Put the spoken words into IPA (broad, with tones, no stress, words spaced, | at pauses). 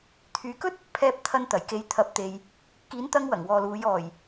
t̪ʰyː˨˧kɵ˥t̚ | pʰɛː˧p̚t̪ʰɐ˧n t̪ɐ˨˩jke˨˧jt̪ʰɐ˨˥p̚ t̪e˨j | kiː˨˥nt̪ɐ˧ŋ wɐ˨˩ŋwɔː˨luː˨˧j ɔː˨˩j